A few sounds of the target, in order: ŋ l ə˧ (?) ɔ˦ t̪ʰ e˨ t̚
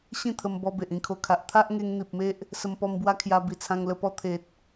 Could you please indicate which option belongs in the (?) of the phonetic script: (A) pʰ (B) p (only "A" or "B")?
B